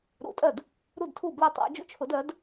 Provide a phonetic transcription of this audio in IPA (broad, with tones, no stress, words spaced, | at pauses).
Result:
ɾṵ˨˥tʼɜ˥˩d | ɾu˥˩dtʰu˥˩ blɜ˥˩tˤɑ̰˨˥ d͡ʒṵ˥˩t͡ʃʰʊ˨˥d ɜ˨˥d